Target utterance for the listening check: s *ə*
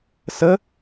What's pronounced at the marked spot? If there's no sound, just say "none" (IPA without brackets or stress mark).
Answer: ə